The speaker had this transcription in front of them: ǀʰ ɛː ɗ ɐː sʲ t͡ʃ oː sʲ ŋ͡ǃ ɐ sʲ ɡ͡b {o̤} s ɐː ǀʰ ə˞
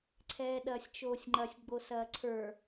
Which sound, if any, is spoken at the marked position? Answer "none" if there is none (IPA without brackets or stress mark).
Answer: o